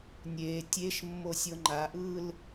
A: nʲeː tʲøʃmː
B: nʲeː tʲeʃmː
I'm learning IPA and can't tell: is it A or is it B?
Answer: B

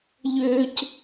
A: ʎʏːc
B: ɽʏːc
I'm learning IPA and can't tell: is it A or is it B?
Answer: A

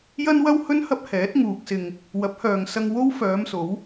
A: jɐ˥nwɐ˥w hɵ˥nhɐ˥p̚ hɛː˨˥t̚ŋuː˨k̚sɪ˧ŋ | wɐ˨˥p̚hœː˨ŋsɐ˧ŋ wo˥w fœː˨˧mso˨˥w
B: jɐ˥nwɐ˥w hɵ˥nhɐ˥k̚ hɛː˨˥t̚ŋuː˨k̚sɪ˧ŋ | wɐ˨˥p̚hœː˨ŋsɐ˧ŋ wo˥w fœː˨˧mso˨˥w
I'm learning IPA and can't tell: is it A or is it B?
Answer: A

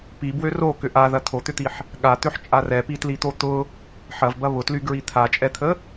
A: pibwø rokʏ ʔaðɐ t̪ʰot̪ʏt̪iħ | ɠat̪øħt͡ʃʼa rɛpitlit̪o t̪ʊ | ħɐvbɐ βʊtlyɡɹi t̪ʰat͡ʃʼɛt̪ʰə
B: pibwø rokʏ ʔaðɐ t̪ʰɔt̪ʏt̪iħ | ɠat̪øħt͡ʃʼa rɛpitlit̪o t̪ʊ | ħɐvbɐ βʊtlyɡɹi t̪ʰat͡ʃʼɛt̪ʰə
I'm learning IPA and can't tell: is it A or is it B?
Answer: A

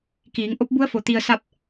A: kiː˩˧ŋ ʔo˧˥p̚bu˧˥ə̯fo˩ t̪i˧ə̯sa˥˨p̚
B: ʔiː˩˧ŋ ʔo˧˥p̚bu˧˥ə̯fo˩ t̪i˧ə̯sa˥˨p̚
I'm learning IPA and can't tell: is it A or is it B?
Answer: A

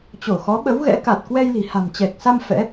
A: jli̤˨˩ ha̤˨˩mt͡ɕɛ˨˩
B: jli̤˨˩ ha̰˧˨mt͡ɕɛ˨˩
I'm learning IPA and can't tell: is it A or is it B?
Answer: A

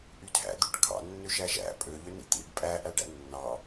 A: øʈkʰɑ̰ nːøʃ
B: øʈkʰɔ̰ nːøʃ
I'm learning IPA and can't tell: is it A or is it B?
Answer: A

